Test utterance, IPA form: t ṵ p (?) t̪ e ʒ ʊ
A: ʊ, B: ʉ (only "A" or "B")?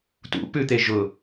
B